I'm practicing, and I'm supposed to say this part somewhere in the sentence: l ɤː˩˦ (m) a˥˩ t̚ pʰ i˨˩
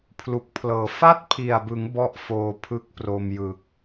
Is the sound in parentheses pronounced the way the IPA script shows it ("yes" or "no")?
no